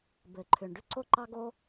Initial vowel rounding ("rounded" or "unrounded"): unrounded